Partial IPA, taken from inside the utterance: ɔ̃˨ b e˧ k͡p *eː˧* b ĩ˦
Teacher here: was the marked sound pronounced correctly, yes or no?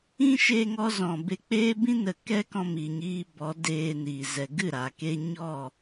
yes